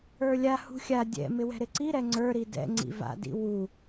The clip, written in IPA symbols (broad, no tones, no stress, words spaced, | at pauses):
ə˞lʲa hṳxʲa dʲɛ̰ mɪwɛ̤ɾɪǀi ɾɛŋ͡ǀə˞ ɾidɛ̰ ŋ͡ǀḭva̰ dḭwu